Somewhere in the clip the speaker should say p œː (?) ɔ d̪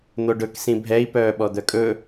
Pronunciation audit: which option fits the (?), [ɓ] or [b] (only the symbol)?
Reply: ɓ